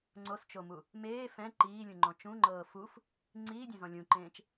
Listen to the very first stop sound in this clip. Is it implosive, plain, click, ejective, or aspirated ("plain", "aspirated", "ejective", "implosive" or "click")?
click